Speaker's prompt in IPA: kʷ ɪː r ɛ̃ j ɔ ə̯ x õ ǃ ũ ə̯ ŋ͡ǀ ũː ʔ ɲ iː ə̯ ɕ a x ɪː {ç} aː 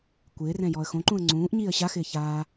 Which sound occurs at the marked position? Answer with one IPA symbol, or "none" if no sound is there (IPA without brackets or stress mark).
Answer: ç